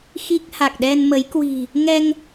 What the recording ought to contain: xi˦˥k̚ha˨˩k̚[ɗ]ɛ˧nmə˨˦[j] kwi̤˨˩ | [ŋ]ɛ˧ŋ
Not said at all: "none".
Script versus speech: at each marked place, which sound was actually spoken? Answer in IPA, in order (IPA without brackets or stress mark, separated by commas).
ɗ, j, ŋ